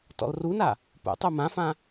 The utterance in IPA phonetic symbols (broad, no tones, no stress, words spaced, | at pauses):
tɔ̰lruna | pṵtˤu mãfã